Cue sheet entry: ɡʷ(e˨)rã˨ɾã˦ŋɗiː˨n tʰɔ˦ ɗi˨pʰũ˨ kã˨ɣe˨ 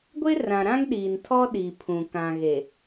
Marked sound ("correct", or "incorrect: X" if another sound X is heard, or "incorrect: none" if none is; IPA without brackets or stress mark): incorrect: e˦